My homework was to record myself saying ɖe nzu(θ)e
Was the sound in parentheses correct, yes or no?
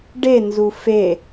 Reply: no